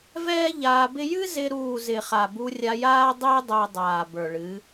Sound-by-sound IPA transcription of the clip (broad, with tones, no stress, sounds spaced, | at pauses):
v ɛː˦ ʎ aː˧ b ɪ˦ j ɨ˦ z ɪ˧ ɾ uː˦˨ z ɪ˨ χ a˨ b u˧ rʲ a˧ j aː˦ dˤ ɪː˦ dˤ ɛ˧ dˤ aː˨ b ə˞˨ ɭ ɨ˨˦